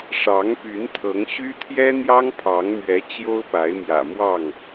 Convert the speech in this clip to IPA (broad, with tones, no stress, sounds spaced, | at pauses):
ʂ ɑ˨˦ ŋ p y˨˦ n t̪ʰ ɤ˨˦ ŋ ɕ y˦ t̪ʰ j ɛ˦ n̪ j ɑ˦ ŋ pʰ ɑ˨˦ ŋ m ɥ ɛ˨˦ t͡ɕ j o˦ ʊ̯ p a˨˦ ɪ̯ m j ä̰˨˩ m w ɑ˥˨ ŋ